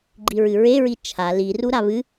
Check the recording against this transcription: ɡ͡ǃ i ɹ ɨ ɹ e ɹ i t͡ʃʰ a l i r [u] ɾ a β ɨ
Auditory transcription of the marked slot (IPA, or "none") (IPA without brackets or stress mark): u